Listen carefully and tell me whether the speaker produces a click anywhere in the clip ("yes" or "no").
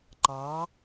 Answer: yes